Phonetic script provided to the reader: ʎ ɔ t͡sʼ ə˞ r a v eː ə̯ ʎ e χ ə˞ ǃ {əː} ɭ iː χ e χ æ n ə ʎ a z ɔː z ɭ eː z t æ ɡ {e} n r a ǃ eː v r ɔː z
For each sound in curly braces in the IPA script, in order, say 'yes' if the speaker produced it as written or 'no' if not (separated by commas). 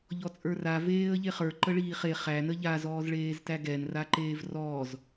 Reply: no, no